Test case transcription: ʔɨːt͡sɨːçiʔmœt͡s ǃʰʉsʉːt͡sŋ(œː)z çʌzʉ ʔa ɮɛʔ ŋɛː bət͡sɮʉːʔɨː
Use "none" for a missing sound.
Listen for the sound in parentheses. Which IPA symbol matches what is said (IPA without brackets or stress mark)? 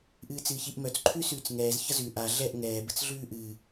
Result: ɛː